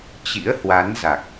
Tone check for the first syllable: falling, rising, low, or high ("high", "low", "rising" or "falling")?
rising